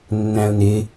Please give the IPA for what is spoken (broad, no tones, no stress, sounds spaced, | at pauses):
nː æ̃ ʊ̯ n ɪ